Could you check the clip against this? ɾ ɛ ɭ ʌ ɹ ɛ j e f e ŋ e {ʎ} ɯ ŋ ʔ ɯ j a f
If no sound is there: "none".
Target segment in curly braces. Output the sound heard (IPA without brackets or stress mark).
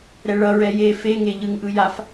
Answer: ʎ